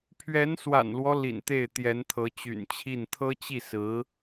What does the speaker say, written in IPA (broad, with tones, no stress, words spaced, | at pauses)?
pʰɥɛ˧˥nswa̰˨˩nlwɔ˦ lḭ˨˩nt̪e˥˩ɪ̯t̪jɛ˧˥nt̪ʰɤ˧˥ t͡ɕy̰˨˩nt͡ɕʰi˥˩n t̪ʰɤ˥t͡ɕi˥˩ sɹ̩˧˥